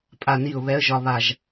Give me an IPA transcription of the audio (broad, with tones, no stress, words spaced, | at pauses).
pʼa˧˩ni˧˩ʊ̯ βɛ˧˥ə̯ʒɒ˧ βa˧˩ʒ